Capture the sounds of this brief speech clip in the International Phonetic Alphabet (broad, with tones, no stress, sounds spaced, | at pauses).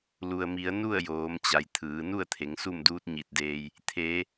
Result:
l u˩ ə̯ m i˩˧ ə̯ n u˥˨ ə̯ j oː˩˧ m t͡ɕ a˩ j t̪ʰ ɯː˩˧ n u˥˨ ə̯ t̪ʰ e˩˧ ŋ s u˥˨ m d uː˧˥ t̚ ɲ i˧˩ t̚ d eː˧ j | t̪ʰ eː˩˧